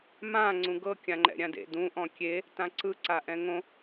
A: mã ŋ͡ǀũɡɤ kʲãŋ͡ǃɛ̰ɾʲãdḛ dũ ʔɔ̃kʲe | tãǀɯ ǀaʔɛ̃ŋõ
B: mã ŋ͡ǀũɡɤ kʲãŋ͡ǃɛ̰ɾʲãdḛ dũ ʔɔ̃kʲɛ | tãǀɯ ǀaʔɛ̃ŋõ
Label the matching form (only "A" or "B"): A